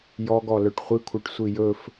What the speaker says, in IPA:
j ɔ ɡ ɔ l œ ʈ χʷ i kʷʰ œ ʈ sʷ i j ɵ f

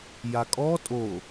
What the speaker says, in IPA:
j a kʼ ɔ tʼ o

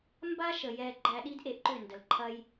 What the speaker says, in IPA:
m b a˦ ʃ ə˨ j ɛ˧ ɡ͡ǃ æ˧ ɗ i˦ d ʔ e˧ ʔ ǃ ʏ˦˨ n d ə˨ l ǃʰ ɐ˦ j

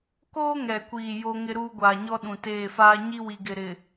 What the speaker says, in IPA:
k oː˦ ŋ ɛ˨ kʷ iː˨ j o˦ ŋ ɪ˦ ɾ uː˦ ɡʷ aː˨ ɲ ɔ˦ ɗ ũ˨ t eː˦˨ f aː˦ ɲ i˦ w i˨ ɡ ɪ˨ ɾ ɪ˨

